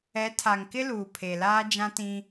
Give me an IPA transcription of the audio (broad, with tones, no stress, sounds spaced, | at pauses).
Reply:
ɛ˨˦ tʰ a˨ ŋ k ɪ˦ l uː˨ pʰ e˨ l aː˦ d͡ʒ ã˦ t ĩ˦